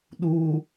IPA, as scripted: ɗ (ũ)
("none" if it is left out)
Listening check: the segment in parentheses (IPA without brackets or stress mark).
u